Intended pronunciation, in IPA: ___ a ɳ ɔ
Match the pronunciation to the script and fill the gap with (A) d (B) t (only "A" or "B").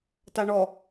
B